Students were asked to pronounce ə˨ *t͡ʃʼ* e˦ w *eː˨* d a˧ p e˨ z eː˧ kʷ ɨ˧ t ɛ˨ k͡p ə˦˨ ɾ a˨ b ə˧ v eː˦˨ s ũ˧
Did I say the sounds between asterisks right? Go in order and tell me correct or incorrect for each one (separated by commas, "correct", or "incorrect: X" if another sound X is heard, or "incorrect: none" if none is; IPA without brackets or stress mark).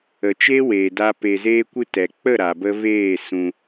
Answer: incorrect: t͡ʃ, correct